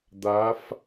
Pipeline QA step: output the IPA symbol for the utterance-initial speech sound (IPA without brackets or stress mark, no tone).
d̪